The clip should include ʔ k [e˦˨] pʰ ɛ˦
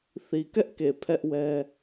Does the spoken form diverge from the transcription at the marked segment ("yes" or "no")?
yes